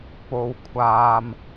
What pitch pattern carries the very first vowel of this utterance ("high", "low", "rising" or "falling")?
high